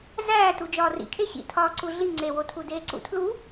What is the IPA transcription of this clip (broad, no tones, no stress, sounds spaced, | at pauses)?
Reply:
z æː t u d͡ʒ ɒː r ḭ kʰ e ɕ ḭ tʰ ɒː ǀ u ɮ i ŋ͡ǀ e w o tʰ u d eː ǀ ṵ tʰ l u